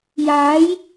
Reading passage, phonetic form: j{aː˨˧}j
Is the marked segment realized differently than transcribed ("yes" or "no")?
no